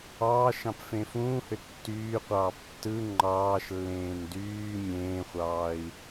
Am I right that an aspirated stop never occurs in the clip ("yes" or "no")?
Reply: yes